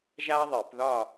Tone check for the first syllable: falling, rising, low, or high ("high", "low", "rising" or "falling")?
high